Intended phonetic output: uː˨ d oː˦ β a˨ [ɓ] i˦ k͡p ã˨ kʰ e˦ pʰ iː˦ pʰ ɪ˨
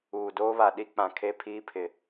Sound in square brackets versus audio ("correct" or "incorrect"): incorrect